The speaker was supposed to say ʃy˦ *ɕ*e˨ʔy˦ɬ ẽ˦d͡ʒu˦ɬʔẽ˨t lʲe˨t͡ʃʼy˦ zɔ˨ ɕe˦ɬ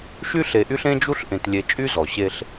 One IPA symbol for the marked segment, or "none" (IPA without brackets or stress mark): ɬ